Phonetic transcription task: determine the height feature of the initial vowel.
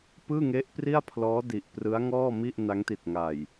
high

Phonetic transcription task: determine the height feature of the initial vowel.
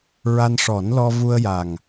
low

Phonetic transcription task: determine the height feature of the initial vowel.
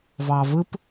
low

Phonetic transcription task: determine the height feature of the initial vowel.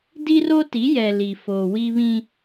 high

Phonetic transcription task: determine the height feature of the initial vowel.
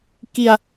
high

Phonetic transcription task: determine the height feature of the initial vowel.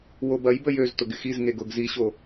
mid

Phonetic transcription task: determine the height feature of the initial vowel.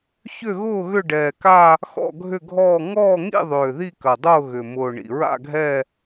high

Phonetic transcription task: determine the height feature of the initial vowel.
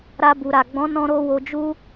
low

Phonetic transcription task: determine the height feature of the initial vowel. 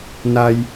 low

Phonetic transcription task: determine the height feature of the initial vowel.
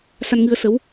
low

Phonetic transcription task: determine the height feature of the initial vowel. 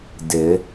high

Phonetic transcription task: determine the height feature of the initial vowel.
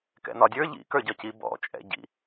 mid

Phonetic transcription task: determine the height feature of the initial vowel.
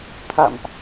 low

